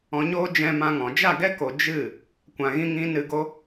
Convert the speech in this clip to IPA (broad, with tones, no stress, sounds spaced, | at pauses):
ɔ̃˨ ɲ oː˧ d͡ʒ ɛ̃˧ m ã˧ ŋ ɔ̃˨ d͡ʒ a˦˨ ɡ ɛ˦ k o˨ d͡ʒ ɨ˦˨ | kʷ ã˨ ɣ ĩ˦ ŋ ĩ˦ n ɨ˧ ɡ o˦